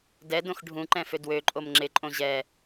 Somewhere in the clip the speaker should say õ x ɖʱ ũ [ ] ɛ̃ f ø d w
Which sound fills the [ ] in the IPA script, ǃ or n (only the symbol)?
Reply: ǃ